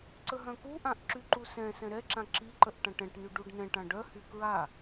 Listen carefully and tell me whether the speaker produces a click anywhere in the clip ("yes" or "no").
yes